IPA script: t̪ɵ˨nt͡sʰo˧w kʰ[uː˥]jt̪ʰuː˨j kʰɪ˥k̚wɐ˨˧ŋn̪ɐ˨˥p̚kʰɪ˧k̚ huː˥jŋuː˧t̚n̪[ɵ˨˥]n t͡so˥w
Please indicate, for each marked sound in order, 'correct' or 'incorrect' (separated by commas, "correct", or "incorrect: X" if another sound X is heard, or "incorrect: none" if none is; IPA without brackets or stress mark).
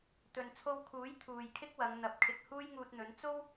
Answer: incorrect: uː˨˥, correct